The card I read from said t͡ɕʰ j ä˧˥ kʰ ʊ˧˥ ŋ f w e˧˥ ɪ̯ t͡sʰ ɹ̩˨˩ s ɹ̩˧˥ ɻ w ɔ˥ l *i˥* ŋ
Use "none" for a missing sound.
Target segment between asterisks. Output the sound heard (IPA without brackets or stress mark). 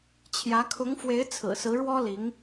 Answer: i˧˥